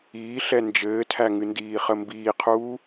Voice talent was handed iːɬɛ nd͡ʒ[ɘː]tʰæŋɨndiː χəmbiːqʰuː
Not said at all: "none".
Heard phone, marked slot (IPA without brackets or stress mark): ɘː